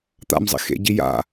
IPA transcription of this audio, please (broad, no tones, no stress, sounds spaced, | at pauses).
t̪ a̰ m zˤ ḭ x ḛ ɟ i j a̰